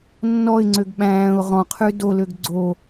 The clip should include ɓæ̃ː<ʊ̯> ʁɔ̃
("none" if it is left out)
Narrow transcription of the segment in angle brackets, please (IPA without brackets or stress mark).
ʊ̯